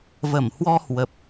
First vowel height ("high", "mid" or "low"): mid